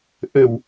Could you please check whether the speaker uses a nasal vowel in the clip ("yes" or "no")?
no